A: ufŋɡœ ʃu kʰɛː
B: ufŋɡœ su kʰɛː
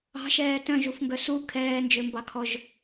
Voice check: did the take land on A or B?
B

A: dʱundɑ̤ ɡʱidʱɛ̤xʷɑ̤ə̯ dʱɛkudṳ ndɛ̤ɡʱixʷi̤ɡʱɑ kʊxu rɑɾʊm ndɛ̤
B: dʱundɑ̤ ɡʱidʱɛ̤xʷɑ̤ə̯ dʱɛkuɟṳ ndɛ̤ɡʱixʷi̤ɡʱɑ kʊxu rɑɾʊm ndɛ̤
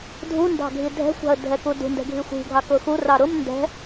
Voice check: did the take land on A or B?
A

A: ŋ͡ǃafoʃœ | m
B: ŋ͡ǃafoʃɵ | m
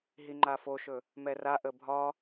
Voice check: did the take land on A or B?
B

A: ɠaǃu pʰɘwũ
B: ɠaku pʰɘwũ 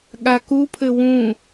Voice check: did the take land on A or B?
B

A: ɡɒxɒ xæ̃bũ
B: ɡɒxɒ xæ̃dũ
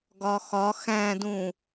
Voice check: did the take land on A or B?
B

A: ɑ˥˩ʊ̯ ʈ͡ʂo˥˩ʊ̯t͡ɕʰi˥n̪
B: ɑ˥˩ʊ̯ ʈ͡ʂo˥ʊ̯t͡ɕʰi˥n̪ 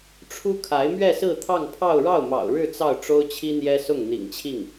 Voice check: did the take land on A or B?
B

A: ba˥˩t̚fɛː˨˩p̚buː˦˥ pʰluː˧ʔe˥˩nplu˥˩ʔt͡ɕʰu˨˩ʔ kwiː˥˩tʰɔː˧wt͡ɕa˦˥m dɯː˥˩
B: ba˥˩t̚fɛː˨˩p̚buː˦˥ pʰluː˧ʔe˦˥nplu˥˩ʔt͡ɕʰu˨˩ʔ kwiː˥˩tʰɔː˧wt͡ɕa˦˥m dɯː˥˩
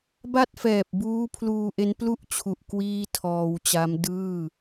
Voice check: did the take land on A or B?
B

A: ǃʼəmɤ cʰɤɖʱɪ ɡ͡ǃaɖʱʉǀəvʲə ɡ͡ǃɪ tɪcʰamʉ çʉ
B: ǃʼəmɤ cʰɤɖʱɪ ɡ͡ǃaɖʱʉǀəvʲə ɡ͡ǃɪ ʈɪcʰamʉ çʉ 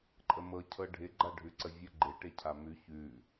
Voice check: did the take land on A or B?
B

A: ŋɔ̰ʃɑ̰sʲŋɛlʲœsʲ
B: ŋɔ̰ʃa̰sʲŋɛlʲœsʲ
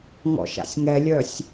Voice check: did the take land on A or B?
B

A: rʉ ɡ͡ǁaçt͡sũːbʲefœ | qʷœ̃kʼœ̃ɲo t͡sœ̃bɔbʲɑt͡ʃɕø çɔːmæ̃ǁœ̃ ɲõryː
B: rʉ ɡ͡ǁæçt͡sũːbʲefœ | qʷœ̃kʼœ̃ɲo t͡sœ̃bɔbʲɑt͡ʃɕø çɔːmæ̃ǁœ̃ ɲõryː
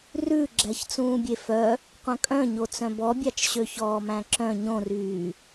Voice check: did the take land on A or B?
B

